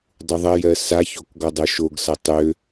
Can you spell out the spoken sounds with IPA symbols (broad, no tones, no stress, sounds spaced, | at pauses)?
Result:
dˤ u ðˤ ɐ j ɜ s a ç o k ɡ ɔ dˤ o ʃ o ɡ s ɐ tˤ ø